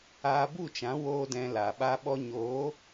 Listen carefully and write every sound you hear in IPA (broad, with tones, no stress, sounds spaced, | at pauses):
aː˧ b u˦˨ t͡ʃ ã˨˦ w oː˦ d ɛ̃˧ l a˨ ɓ a˦ ɓ ɔ˧ ɲ oː˨˦